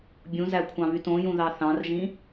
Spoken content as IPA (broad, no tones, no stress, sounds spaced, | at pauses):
bʲ ũ z æ kʷʰ ɑ̃ β y t õ j ũ ð ɑ θ ɑ̃ r ʒ ĩ